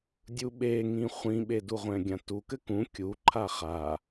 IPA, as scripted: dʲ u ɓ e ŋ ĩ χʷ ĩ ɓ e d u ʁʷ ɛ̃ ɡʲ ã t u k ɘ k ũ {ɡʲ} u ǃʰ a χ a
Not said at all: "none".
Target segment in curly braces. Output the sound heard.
kʲ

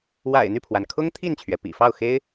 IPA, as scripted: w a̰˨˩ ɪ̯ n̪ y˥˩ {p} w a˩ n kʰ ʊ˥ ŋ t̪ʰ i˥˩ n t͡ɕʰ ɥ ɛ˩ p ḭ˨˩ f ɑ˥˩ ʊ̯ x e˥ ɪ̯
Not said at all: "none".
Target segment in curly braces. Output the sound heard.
pʰ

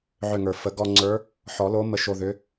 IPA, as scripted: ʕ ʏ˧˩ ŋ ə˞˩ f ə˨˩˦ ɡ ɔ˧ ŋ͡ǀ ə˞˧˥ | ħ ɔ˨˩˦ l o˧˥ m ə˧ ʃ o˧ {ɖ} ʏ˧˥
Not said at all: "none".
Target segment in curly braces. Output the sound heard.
ð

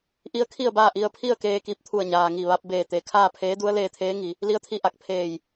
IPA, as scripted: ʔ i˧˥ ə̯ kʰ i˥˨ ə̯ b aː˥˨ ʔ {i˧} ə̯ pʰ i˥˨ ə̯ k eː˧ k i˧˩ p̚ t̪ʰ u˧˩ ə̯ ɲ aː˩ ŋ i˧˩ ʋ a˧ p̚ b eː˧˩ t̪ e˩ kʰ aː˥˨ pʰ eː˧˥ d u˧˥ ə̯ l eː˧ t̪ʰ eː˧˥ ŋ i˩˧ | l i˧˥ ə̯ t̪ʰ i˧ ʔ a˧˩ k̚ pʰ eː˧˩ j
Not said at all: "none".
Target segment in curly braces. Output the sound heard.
i˧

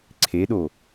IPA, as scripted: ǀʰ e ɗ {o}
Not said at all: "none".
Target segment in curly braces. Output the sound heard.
o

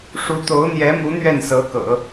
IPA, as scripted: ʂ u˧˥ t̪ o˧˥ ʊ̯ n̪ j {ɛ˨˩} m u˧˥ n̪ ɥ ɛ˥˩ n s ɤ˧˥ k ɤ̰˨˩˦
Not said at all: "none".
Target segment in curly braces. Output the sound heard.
ɛ˧˥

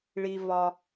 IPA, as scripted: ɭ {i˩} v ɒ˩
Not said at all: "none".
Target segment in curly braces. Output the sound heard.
i˩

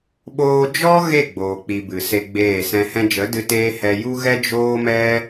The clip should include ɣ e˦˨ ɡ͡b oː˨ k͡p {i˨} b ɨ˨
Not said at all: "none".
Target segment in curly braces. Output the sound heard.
i˨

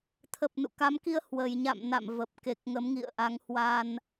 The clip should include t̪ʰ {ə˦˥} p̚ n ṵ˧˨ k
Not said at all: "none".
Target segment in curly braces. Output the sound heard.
ə˨˩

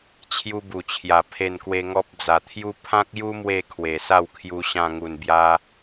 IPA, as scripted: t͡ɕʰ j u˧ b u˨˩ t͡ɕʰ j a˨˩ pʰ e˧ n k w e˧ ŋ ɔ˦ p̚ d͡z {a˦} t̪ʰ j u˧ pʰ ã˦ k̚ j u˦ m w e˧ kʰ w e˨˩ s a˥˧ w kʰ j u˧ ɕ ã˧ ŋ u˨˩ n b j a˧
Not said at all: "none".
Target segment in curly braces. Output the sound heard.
a˨˩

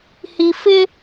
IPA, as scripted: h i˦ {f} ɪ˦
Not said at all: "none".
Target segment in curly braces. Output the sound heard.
f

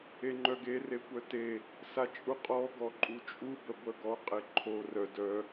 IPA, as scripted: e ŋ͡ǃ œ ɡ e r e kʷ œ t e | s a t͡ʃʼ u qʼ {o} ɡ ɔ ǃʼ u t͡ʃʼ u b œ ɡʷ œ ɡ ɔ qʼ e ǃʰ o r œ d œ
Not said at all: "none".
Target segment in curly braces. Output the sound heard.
ɔ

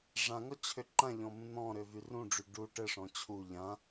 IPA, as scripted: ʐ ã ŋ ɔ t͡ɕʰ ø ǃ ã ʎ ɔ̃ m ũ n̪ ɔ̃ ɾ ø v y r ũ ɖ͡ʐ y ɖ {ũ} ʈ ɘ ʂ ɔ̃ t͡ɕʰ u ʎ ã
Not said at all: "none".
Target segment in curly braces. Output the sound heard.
u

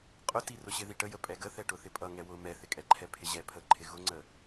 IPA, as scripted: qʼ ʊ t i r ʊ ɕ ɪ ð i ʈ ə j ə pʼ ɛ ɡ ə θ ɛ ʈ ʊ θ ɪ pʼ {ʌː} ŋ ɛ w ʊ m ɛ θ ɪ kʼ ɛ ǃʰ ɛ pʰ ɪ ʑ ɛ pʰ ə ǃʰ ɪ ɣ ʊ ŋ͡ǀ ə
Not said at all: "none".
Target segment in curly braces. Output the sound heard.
ʌ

